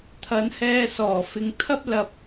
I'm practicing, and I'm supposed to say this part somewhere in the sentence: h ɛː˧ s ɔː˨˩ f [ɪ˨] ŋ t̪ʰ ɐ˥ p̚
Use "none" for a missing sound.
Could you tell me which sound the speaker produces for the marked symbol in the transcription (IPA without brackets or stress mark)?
ɪ˨